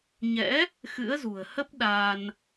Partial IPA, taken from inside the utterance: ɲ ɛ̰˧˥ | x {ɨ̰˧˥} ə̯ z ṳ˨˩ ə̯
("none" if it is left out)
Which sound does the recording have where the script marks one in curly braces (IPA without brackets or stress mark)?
ɨ̰˧˥